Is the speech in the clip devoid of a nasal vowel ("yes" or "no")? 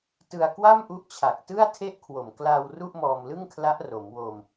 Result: yes